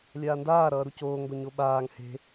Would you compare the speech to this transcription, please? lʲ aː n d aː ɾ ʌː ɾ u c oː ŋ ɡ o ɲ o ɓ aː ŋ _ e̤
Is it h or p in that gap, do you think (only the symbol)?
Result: h